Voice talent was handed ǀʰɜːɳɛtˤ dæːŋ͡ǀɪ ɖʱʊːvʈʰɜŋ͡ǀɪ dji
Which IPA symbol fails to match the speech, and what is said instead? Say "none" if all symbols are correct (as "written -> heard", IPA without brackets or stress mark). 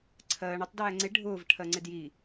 none